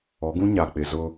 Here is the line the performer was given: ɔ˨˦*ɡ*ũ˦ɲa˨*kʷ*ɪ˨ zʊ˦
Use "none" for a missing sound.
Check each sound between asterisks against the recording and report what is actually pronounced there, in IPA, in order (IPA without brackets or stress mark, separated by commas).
ɡ, k͡p